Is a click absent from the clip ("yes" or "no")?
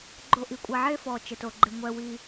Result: no